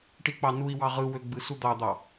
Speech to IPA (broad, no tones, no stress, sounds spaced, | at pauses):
ʈ i k͡p ɑ n u i̯ w ɑ ʁ ɯ w ø ɡ͡b ɯ s u d̪ ɑ d̪ ɑ